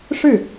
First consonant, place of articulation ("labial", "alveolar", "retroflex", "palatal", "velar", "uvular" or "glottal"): retroflex